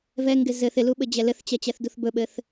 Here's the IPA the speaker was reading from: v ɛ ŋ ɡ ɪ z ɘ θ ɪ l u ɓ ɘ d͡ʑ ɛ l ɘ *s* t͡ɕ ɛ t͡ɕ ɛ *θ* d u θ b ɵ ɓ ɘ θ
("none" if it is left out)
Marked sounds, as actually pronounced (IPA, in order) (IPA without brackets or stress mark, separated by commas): θ, θ